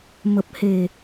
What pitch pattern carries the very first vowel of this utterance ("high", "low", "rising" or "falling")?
low